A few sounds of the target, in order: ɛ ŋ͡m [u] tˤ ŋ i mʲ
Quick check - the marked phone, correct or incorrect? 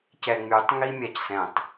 incorrect